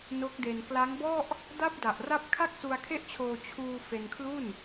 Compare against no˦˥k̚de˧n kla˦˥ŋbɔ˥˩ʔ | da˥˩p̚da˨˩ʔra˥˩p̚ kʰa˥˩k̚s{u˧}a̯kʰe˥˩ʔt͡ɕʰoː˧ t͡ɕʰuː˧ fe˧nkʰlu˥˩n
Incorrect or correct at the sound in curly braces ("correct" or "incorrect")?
correct